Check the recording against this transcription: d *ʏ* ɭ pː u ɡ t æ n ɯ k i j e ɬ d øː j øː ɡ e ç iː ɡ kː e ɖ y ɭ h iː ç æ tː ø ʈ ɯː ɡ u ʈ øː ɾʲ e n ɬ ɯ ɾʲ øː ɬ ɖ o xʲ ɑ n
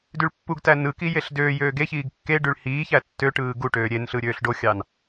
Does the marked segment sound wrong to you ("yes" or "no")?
yes